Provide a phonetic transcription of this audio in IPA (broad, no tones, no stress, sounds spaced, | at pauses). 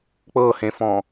k͡p ɤ h ẽ f ɔ̃